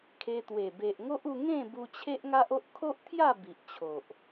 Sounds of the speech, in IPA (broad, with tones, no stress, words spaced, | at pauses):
kʰe˧t̪we˨˩ be˨ʔŋo˦ʔu˧ ŋẽ˥˧ bu˧t͡ɕʰe˦ʔŋa˦ʔ o˦ʔkʰo˦ʔt̪ʰja˥˧ bi˨ʔt͡ɕʰo˨ʔ